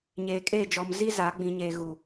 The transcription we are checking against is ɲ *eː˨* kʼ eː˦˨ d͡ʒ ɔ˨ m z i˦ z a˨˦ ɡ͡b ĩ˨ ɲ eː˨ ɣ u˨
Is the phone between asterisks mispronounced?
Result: no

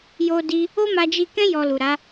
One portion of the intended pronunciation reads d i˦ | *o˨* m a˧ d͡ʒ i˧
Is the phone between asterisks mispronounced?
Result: yes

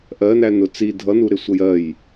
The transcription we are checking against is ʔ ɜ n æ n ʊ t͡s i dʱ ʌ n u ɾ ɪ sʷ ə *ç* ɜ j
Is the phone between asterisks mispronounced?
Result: yes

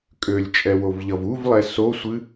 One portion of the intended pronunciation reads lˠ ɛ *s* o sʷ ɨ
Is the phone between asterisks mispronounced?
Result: no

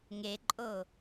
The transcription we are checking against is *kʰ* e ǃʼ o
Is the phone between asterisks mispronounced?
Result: yes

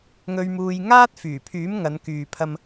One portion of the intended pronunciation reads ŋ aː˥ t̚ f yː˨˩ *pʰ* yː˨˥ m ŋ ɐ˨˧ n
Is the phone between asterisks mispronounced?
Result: no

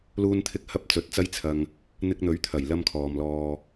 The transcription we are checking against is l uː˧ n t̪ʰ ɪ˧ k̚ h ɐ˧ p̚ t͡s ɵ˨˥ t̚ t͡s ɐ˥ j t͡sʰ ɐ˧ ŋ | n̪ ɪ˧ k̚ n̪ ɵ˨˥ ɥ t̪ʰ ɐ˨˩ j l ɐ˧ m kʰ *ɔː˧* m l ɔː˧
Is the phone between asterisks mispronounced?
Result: yes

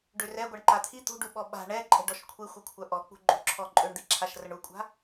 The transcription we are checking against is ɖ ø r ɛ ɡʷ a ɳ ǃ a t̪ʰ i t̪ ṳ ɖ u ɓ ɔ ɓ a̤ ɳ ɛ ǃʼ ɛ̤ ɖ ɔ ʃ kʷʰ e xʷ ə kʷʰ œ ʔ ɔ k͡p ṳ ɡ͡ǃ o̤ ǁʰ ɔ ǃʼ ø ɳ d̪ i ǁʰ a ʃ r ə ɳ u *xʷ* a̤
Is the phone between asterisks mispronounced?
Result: yes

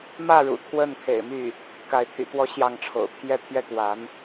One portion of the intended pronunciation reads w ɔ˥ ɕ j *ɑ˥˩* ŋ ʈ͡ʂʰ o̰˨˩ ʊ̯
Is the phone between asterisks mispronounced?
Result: no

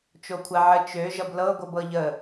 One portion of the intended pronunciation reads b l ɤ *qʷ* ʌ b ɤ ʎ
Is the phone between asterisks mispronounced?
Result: yes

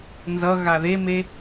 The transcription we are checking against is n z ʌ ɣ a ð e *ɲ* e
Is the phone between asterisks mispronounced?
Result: yes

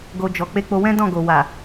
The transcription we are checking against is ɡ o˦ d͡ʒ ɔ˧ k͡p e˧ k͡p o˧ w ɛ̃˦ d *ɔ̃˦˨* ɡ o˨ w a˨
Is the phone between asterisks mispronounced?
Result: no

